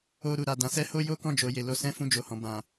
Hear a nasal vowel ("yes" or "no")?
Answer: yes